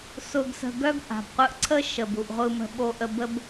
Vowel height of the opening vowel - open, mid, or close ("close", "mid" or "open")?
close